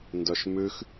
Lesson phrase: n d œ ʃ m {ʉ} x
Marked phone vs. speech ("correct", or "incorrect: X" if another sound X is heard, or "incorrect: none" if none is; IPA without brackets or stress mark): correct